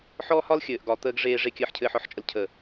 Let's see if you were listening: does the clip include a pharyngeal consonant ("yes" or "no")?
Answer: yes